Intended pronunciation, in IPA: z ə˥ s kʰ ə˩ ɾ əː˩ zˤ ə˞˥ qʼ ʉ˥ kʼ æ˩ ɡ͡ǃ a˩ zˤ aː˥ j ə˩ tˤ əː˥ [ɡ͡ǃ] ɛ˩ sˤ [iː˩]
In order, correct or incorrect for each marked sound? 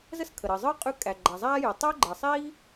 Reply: correct, incorrect

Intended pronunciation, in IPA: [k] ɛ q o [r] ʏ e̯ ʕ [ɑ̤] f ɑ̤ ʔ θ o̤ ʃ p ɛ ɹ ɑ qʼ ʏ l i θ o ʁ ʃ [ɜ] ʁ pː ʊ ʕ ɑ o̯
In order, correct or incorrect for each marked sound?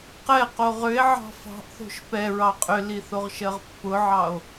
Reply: incorrect, incorrect, correct, correct

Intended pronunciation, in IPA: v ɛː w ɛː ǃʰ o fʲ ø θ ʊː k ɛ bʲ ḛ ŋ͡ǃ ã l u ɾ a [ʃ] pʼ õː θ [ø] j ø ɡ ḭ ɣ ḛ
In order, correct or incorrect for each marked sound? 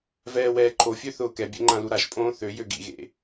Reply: correct, correct

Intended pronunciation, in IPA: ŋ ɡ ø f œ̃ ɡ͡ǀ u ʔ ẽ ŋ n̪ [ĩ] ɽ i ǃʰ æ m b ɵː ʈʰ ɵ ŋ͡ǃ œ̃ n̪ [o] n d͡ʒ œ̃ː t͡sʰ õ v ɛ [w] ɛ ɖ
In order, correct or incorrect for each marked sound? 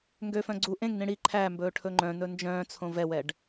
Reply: correct, incorrect, correct

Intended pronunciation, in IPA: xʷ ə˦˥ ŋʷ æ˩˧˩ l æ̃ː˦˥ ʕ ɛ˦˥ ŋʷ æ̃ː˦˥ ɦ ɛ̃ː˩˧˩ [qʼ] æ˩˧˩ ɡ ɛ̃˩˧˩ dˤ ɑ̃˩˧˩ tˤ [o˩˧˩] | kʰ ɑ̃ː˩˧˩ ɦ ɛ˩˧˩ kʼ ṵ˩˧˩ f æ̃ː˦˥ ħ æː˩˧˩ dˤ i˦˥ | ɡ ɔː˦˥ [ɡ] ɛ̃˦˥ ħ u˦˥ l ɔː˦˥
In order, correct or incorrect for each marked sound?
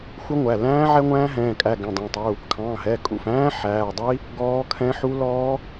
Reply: incorrect, incorrect, incorrect

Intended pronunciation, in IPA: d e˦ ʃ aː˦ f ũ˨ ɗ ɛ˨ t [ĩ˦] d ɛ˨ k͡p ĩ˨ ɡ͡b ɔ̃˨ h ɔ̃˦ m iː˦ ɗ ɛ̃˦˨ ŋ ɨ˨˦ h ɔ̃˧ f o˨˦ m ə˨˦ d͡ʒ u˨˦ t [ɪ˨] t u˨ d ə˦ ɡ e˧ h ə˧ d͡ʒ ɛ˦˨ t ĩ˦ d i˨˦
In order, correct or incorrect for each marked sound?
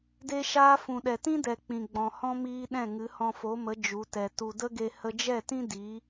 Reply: correct, incorrect

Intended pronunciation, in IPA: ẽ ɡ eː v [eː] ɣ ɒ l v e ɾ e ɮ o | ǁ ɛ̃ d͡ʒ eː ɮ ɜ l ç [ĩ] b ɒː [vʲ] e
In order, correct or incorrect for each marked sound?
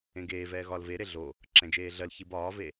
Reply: incorrect, incorrect, incorrect

